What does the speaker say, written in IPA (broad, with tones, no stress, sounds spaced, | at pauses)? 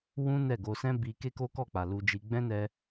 w ũ˦ n ɛ˦˨ ɡ o˧ s ɛ̃˦ b i˧ k e˦ k o˦ k ɔ˦˨ k͡p a˨ l u˧ d͡ʒ i˧ ɡ͡b ɛ̃˦ n ɛ˧